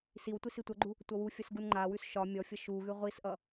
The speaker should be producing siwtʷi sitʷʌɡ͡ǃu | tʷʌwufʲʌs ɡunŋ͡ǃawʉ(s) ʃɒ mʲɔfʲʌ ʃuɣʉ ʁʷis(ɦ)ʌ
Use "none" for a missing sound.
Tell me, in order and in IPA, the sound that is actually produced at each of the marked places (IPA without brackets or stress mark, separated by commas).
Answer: s, ʔ